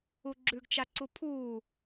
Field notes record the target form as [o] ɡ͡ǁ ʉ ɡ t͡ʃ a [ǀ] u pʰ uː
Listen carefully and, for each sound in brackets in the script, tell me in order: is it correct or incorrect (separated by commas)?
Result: incorrect, correct